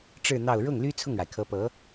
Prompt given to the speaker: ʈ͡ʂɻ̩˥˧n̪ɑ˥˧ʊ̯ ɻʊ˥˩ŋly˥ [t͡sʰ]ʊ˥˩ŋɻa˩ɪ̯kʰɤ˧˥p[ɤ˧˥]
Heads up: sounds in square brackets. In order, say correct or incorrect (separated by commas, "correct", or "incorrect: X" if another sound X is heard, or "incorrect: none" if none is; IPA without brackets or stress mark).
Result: correct, correct